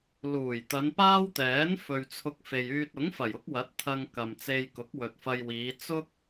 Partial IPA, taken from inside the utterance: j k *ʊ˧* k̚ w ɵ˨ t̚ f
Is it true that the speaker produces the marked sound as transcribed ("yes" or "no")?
no